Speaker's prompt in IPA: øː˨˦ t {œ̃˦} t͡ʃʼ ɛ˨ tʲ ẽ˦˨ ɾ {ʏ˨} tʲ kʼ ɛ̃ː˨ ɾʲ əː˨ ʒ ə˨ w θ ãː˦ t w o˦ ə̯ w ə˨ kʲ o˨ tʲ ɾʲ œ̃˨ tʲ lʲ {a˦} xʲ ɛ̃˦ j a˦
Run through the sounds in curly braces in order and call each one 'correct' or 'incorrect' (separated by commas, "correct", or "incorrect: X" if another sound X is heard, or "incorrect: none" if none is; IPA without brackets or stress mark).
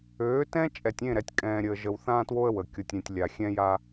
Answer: incorrect: ɛ̃˦, incorrect: ɛ˨, incorrect: a˨